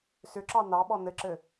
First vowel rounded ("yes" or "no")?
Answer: yes